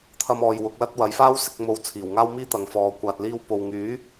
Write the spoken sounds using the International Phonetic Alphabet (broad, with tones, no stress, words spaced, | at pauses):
t̪ʰɐ˥mɔː˧j wʊ˨˥k̚lɐ˥t̚ wɐ˨˧jfaː˥wsɪ˧k̚ mo˧w t͡sʰiː˨˩wŋaː˥wmiː˥t̪ɐ˨ŋ fɔː˨˧ kʷaː˨t̚liː˧wpo˨w ŋyː˨˥